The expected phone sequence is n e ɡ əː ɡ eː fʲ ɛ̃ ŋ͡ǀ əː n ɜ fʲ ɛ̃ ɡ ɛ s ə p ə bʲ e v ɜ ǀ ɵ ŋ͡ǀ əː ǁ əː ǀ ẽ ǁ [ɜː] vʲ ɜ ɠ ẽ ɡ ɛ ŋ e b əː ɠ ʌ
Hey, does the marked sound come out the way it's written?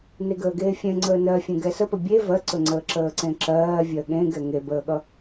yes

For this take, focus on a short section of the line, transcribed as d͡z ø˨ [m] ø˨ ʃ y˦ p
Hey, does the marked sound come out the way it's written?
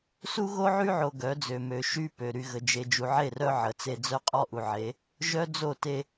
yes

